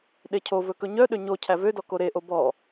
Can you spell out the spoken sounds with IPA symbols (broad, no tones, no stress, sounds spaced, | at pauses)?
ɗ e cʰ o v ɵ k ɵ ɲ œ ɗ ø ɲ o cʰ æ v ø d ɔ k o ɾ e ʔ o b ɔ